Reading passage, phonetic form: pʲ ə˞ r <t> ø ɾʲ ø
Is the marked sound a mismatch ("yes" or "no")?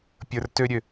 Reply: no